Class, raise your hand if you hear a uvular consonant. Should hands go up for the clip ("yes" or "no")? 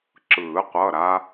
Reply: yes